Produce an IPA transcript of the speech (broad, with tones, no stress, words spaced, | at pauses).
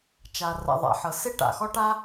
t͡ʃa˩ ra̰˩ ðˤa̰˩ ħɤ˩ se˥ʈa̰˩xɔ˥ʈa˥